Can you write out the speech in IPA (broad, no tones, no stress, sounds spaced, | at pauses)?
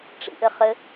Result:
ʈ͡ʂ ḭ ʔ ɘ χ ɘ